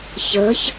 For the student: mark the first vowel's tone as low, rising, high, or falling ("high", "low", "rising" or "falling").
rising